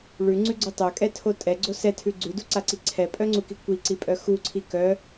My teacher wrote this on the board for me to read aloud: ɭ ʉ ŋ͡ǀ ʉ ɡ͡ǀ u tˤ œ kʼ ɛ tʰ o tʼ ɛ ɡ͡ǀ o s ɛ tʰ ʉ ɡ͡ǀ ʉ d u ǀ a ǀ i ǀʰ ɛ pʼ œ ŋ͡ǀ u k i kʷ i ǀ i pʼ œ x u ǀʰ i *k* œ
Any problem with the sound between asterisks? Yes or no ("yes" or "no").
no